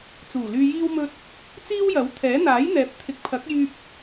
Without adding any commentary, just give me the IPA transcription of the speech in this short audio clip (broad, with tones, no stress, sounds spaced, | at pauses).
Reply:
t͡s uː˨˩ l yː˧ j iː˥ w m ɵ˥ t̚ | t͡s iː˥ w j ɐ˨˥ w t̪ʰ ɛː˨˥ n̪ aː˨˥ j n̪ ɛː˨˥ p̚ t̪ʰ ɪ˨ k̚ pʰ ɐ˨˥ k̚ j yː˧ p̚